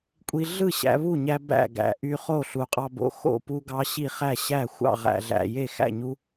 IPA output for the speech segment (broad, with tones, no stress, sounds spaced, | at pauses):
kʷʼ i˧ ɮ ɯ˥˩ ɕ æ̰˧ β u˥˩ ɲ æ˧ b æ̰˥˩ ɡ æ̰˨˩ ʔ y˧ χ o˥˩ ɬ u˨˩ qʼ ɑ˧ b o̰˧ x o̰˥˩ p u˧ ɡ ɑ˧ ɕ i˥˩ χ æ˥˩ ɕ æ˥˩ xʷ ɑ̰˥˩ ʁ æ̰˨˩ ɮ æ̰˨˩ j e˥˩ x æ̰˥˩ ɲ u˧